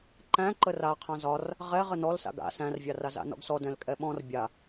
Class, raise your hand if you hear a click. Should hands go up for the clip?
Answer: yes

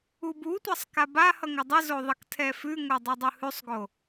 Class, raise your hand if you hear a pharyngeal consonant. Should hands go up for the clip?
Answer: no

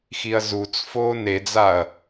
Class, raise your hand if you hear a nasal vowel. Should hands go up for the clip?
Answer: no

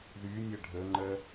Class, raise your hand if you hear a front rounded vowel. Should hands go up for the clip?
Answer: yes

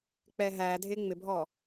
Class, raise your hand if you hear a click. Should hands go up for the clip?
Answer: no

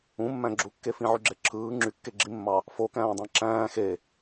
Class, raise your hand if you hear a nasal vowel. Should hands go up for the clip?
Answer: yes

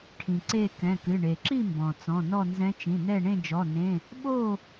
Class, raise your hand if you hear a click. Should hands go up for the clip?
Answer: yes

